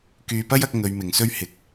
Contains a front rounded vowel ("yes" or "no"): yes